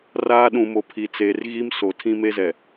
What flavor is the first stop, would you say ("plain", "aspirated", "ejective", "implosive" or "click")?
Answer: implosive